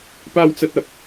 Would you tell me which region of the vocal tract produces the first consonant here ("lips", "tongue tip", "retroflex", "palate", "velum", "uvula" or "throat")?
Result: lips